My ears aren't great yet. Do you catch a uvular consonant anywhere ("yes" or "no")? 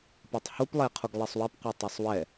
yes